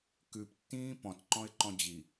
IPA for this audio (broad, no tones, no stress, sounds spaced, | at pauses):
k ʉ p tː ĩː p ɔ̃ t ǃ ɔ̃ ɪ̯ ǃ ɔ̃ d͡ʑ i